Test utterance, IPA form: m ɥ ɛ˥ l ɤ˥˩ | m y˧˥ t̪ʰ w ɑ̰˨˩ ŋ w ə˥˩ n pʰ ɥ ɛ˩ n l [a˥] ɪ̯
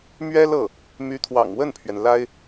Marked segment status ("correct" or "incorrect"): correct